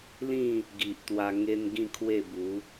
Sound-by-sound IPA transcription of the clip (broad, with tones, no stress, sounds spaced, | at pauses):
l ĩ˥˧ | ɡ i˨ ʔ t̪ w a˧ ŋ e˦ n ɡ ĩ˥˧ kʰ w e˥˧ b u˨˦